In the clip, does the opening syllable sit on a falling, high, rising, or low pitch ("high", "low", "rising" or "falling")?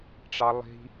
high